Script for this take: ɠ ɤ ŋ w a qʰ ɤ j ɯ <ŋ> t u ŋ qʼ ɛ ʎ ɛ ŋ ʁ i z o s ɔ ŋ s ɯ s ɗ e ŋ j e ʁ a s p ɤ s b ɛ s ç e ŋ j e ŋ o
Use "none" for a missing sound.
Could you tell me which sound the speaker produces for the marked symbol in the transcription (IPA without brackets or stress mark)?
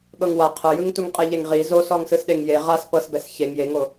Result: ŋ